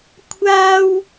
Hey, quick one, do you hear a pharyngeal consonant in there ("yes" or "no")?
no